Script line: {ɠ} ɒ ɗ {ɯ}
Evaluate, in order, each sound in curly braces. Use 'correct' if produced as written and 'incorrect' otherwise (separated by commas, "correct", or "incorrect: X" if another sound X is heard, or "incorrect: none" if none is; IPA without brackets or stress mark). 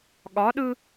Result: correct, correct